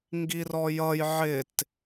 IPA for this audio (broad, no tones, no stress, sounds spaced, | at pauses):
ŋ ɡ i r ɔ j ʌ j ʕ ɪ t